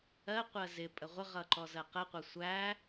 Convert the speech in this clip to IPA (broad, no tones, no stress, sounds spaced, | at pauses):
ɜ qʷ ɜ z ɪ pʼ ə ʁʷ ə ʁ ʌ ǃ ɔ z ɜ q ə qʷ ə sʷ æ